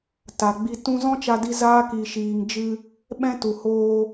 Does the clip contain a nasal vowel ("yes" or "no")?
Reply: yes